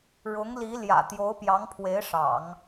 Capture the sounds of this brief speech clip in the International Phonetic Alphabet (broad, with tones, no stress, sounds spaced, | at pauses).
ɻ ʊ˧˥ ŋ l i˧˥ l j ä̰˨˩ t̪ j o˧˥ ʊ̯ p j ɑ˧˥ ŋ pʰ w e˧˥ ɪ̯ ʂ ɑ̰˨˩˦ ŋ